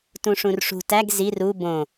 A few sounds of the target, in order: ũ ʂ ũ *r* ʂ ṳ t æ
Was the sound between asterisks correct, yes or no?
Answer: yes